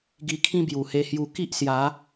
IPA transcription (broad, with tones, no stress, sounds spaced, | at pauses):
ɡ i˧ kʰ ĩ˦ b j u˨˩ h e˧ h j u˧ k i˦ ʔ s j a˨˦